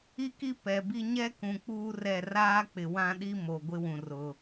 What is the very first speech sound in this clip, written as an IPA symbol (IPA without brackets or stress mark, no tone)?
i